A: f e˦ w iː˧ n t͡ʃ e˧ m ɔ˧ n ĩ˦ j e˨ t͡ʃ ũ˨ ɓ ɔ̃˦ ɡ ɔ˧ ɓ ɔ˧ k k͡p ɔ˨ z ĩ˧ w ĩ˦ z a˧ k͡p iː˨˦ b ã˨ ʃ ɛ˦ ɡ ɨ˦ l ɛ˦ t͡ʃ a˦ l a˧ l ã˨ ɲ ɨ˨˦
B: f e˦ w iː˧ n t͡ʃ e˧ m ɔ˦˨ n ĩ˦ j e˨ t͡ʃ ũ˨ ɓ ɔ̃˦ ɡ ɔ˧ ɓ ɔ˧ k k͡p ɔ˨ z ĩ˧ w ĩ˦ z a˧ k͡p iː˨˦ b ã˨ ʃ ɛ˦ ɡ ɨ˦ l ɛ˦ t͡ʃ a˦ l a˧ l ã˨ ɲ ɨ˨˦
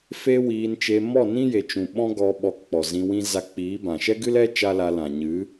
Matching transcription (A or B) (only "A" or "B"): B